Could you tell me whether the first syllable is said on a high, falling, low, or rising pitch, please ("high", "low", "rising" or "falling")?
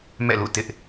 falling